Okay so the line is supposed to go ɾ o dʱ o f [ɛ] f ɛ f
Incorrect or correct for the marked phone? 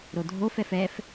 correct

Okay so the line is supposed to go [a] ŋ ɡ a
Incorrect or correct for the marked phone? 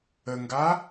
incorrect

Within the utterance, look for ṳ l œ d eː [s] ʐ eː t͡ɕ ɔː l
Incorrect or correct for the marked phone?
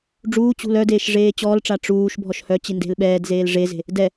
incorrect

